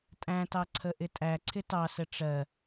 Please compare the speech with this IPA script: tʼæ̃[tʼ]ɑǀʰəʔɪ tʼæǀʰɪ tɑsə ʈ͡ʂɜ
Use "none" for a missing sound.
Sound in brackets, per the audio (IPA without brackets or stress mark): t